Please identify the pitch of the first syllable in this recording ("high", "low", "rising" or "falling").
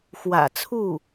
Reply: low